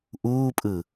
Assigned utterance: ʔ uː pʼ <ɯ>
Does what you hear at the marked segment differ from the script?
no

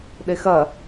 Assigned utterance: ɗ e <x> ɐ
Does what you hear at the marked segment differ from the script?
no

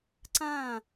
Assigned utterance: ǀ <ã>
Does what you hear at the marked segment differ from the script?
no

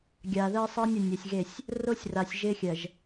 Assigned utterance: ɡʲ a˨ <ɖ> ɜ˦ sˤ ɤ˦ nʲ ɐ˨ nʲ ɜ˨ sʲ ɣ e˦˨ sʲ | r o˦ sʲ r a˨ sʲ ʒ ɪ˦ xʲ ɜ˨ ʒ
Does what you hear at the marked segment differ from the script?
yes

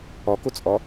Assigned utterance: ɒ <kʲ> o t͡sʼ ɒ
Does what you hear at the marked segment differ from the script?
yes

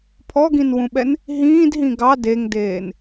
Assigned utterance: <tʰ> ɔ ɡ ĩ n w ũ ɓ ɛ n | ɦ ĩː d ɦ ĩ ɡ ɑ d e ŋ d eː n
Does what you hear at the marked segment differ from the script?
yes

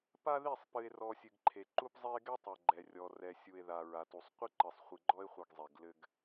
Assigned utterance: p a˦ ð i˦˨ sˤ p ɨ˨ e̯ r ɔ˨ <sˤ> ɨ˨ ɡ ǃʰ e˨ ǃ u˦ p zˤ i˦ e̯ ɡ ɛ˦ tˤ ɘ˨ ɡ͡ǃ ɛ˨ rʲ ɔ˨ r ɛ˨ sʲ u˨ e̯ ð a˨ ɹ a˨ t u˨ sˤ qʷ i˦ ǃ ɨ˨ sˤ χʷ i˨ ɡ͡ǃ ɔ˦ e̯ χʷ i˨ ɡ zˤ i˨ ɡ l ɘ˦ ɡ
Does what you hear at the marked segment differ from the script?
yes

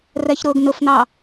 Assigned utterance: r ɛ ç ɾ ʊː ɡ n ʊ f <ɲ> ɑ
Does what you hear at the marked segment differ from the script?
yes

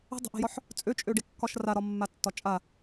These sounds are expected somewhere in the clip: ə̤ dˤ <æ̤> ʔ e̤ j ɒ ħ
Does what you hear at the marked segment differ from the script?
yes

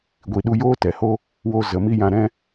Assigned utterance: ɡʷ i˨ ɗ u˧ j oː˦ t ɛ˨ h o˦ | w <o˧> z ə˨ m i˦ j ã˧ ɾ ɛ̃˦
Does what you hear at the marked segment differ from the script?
no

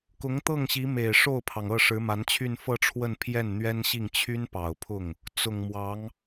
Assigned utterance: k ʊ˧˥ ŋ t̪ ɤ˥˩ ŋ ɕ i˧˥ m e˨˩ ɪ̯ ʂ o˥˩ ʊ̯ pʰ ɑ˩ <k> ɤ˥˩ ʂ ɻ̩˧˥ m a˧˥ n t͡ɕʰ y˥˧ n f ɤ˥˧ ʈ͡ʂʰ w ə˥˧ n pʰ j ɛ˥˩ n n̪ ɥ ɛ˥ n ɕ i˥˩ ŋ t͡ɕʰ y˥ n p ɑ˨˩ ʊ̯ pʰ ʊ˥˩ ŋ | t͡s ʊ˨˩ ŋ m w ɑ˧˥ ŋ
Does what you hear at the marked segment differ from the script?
yes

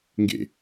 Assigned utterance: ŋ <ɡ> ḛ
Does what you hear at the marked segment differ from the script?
no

